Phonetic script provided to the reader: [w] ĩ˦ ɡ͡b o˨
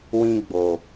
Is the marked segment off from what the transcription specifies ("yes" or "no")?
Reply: no